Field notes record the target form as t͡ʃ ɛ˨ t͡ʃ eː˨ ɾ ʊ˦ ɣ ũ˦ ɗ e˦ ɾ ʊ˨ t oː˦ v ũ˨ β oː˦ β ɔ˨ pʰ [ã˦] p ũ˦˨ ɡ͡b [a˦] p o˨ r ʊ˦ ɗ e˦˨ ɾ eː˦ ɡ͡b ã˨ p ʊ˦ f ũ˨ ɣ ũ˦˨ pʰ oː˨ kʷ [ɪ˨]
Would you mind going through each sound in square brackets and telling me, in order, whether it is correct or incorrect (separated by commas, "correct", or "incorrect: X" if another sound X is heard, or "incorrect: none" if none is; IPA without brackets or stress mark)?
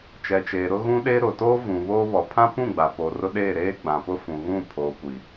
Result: correct, incorrect: a˨, incorrect: i˨